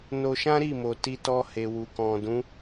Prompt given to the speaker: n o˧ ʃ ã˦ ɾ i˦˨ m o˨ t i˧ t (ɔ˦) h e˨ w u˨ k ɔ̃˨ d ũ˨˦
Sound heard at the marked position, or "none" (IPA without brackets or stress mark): ɔ˧